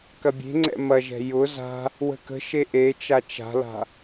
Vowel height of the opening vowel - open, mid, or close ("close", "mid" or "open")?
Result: open